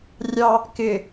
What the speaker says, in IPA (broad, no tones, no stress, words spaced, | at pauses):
rʲɑ | kɪ